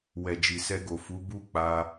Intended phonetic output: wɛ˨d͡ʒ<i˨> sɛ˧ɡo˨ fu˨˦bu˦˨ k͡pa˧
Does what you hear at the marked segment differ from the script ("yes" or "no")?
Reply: no